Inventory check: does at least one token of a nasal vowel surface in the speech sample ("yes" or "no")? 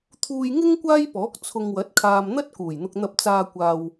no